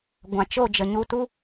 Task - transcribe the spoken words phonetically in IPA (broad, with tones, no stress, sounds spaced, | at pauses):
ɡʷ ã˨ t͡ʃ o˦˨ d͡ʒ ə˨ ɲ u˧ t u˦